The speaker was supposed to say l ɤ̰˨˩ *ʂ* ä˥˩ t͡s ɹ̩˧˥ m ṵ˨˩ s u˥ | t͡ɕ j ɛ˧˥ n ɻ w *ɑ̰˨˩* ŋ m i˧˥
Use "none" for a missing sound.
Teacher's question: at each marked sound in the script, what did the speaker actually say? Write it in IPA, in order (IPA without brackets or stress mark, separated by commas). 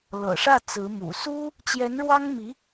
ʂ, ɑ˥